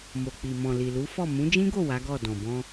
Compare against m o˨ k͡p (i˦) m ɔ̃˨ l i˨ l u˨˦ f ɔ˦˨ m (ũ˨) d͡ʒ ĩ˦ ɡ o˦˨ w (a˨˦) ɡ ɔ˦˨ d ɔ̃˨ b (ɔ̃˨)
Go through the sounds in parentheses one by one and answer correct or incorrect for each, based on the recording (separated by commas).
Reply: incorrect, incorrect, correct, incorrect